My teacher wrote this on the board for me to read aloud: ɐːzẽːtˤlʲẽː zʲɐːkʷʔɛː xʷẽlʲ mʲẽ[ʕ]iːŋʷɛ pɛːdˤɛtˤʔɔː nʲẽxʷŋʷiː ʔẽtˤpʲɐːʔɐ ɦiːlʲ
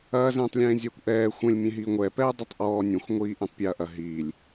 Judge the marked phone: incorrect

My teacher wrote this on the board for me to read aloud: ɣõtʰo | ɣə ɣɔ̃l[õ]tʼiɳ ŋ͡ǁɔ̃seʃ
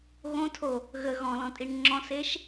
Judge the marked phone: incorrect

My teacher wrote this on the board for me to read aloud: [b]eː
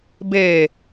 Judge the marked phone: correct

